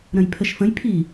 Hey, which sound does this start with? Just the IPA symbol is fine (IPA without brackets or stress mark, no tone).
ɾ